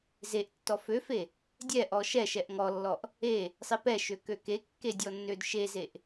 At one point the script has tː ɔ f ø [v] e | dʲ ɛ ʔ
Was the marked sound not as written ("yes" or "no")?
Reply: yes